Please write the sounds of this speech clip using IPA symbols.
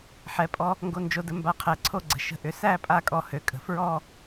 ħɛ˩˥pʼɔ˧ | ŋɡo˧nd͡ʒo˧də˧ mba˧qʰɛ˩˥ǀʰo˥˧ɡ͡ǀə̤˩˥ ʃə̤˧ ʔʏ˩˥sæ˥˧ pʼa˥˧kʼɔ˧hø˩˥ kʼə̤˩˥fɹɔ˥˧

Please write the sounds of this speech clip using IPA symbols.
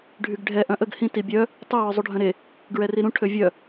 ɖʱyɡɖʱɛ ʔœ̃ʔəɡ hĩ tibʲœ | tˤy wœzˤuɖʱœ̃ɾe | ɡɹɛriɾũ ʈʰøvʲœ

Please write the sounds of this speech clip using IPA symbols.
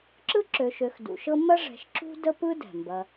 ǁɯ˥ǁø˨ʃø˨x dṵ˨ʃɤ˥ mɐ˦ʐɛ̤˨ʃǁṳ˦ də˥pɯ˥dɛ̤˩mbɐ˨

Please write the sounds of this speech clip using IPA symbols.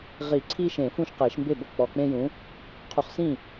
ʁi˨˩˦ ǀʰi˦ʃẽ˨˩˦ fũ˦ʃqe˨˩˦ʃmbe˥˩bɤ˥˩ k͡pɔ˨k͡pẽ˦jũ˨˥ | qʰu˨χsĩ˥˩

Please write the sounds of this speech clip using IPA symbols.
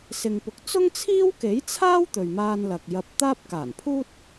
sɪ˧ŋpʊ˧k̚ t͡sʊ˥ŋt͡sʰiː˥wke˨˥jt͡sʰaː˥w t̪ɵ˨ɥmaː˧nlɐ˨k̚ jɐ˧p̚t̪aː˥p̚ kaː˨˩npʰuː˥t̚

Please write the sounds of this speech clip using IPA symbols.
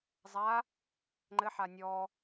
zˤa | ŋ͡ǃɘħa nʲɔ

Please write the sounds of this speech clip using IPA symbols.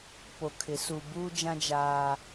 po˨kʰɪ˨˦ su˨buː˦d͡ʒã˦ d͡ʒaː˦

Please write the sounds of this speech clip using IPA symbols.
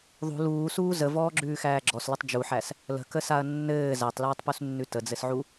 ðˤṳ luːsuː zəvɔːɡ͡ǁʉːxæː ɡ͡ǁɔslətˤ d͡ʒuħæs | lə̤kəsaɐ̯ nːɘː zætˤlʉːtˤpusnːʉ təd͡zɘsʕu

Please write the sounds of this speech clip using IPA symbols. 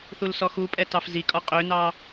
θulsɔxupʼɛ tɑfzikʼɔ qʼønɑ

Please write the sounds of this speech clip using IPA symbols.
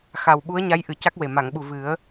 xa˨˩wɓu˧˥ə̯ ɲa˧˥jʔɨ˨˩ ca˦˥k̚we˨˩ ma˨˩˨ŋɓu˨˩ vɨ˨˩˦ə̯

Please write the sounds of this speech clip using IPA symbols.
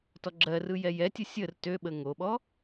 tɔɡ͡ǁɜrɯ jɛjɛtʲə sʲər tøɓə ŋoɓɔ

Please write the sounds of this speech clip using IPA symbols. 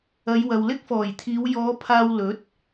ɐ˨˧j wɐ˨wlɪ˥k̚fɔː˨˩jt̪ʰiː˨˧w jɔː˨˧ pʰaː˧wlɵ˨˥t̚

